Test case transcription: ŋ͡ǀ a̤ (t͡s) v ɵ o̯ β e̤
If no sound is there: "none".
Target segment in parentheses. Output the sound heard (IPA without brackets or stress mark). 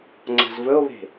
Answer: z